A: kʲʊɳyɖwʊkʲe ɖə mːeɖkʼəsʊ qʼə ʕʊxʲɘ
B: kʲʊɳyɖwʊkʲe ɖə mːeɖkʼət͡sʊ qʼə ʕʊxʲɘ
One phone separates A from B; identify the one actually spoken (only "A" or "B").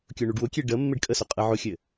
A